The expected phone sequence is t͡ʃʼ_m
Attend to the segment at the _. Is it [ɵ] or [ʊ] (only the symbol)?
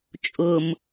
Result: ʊ